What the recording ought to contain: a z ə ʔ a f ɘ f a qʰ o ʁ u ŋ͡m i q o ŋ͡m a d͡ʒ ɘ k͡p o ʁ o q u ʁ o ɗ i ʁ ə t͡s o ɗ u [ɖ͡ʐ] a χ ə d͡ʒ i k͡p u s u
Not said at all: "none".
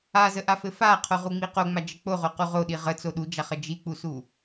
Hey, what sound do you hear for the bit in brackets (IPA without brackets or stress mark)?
d͡ʒ